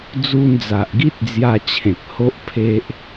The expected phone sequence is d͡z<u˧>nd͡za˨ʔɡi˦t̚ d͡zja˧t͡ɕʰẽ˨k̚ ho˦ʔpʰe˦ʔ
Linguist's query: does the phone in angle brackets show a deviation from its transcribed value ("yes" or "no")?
no